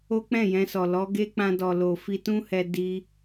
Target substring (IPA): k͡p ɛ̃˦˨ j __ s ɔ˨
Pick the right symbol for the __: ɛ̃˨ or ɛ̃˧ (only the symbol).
ɛ̃˧